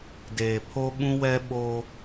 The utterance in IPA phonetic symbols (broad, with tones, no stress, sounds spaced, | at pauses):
d eː˨ pʰ o˦ ɓ ũ˦ w ɛ˦ ɓ o˦